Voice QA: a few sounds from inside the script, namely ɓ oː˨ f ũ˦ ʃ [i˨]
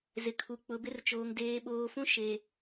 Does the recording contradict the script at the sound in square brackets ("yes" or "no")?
yes